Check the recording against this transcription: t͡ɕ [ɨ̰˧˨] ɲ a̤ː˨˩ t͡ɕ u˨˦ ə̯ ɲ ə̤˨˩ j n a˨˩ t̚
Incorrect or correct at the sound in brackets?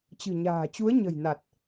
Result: incorrect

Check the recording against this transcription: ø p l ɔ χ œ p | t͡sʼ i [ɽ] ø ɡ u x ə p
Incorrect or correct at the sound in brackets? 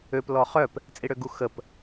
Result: correct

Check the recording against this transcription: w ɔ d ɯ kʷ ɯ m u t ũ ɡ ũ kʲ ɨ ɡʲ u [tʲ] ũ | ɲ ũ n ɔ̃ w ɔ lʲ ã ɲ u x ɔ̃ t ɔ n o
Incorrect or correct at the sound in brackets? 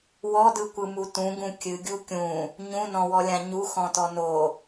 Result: incorrect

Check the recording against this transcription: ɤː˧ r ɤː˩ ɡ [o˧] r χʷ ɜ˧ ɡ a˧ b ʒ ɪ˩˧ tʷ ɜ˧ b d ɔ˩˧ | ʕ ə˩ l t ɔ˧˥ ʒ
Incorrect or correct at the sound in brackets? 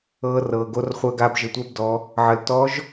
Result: correct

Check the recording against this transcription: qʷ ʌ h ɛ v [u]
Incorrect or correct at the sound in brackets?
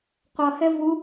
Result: correct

